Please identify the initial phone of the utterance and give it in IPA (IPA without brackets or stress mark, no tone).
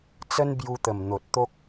t͡s